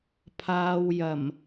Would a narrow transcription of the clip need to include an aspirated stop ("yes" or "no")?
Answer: yes